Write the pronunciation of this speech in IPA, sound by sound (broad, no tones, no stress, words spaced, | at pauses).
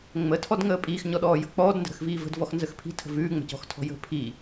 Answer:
ŋ͡mətʰɔdŋəː pʼiːxɲɔɗɔːjə̤ k͡pɔːdndə̤ɾə̤xviː və̤dvɔxnzəx pʰi̤tʰə̤ vʉːŋ͡mə̤cɔ̤xtʰɔ̤ jə̤ pʰi